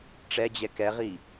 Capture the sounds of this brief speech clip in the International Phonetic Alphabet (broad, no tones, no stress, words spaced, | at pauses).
ʈ͡ʂɛd͡ʑɛ kɛʁi